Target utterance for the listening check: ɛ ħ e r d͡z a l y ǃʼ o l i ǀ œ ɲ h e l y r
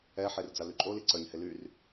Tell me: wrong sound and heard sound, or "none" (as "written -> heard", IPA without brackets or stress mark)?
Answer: none